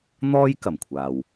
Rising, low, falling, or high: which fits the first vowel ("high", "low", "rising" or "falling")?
high